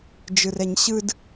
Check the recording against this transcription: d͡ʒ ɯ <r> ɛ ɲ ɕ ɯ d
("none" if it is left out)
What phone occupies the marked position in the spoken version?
r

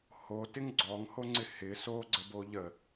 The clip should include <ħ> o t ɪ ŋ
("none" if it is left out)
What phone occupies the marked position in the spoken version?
h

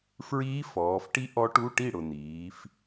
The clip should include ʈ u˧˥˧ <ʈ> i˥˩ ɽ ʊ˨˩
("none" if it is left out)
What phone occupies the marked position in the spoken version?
ʈ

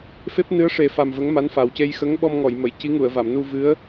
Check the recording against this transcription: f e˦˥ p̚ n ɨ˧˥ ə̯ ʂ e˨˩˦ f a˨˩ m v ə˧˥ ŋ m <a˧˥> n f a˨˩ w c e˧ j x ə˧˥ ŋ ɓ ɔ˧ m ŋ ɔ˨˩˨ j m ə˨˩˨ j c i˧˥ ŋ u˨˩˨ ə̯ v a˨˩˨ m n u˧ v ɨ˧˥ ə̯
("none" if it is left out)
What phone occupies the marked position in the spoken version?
a˧˥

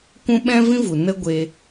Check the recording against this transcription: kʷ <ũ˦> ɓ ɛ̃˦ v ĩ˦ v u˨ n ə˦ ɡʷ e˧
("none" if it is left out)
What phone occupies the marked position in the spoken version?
ũ˦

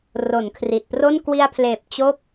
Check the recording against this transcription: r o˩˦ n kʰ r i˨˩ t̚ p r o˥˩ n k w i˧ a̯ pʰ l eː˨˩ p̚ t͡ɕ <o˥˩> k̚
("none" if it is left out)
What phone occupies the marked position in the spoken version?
o˥˩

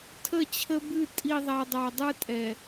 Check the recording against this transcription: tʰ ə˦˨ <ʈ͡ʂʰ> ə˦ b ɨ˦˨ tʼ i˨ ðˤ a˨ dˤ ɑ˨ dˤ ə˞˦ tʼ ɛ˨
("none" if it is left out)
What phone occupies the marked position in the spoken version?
t͡ɕʰ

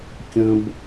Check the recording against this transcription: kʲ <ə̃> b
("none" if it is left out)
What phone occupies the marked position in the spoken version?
ə̃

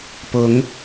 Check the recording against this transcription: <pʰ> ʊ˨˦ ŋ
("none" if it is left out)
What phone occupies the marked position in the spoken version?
p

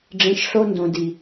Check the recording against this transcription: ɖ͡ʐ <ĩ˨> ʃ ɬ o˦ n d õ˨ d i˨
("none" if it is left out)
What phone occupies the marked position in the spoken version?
ĩ˨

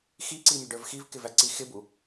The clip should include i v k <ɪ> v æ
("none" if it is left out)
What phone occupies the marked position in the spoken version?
ɪ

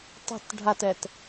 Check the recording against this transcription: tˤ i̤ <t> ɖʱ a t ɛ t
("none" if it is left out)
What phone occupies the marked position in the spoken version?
t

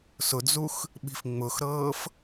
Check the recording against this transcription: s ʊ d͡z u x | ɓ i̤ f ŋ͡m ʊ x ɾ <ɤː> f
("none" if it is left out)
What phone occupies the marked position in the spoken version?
ɤː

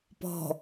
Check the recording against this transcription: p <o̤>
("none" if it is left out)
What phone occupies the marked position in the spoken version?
ɔ̤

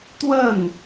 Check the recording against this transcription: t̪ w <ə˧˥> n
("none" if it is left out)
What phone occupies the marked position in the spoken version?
ə˥˩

